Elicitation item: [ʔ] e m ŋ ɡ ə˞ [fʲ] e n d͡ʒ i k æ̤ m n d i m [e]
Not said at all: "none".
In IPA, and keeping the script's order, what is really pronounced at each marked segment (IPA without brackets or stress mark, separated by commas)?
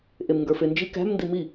ʔ, f, i